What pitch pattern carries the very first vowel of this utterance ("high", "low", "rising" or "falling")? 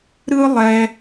high